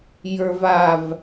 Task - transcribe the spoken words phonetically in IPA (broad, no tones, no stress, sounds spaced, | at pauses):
j ə˞ v a v